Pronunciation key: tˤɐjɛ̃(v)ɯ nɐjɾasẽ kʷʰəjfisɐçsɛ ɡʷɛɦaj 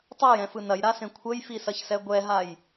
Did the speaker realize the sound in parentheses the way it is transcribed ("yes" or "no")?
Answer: no